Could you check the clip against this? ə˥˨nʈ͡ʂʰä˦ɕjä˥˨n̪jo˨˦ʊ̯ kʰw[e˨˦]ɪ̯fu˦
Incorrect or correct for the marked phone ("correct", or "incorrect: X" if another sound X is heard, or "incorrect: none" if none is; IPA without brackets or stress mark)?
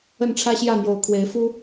correct